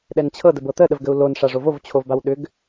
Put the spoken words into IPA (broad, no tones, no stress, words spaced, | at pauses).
ɗɛnt͡ɕʰɤ dəbɤt̪ə ɗəvɡəu̯lon ʂaʐovov t͡ɕʰovbawɗʏɡ